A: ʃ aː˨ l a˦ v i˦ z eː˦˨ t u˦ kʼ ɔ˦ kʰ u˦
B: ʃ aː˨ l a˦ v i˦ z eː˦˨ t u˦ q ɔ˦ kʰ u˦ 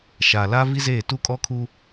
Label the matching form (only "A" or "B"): A